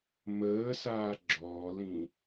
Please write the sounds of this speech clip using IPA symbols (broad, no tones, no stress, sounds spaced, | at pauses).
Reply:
m əː s aː ɡ͡ǁ ɔː l ĩ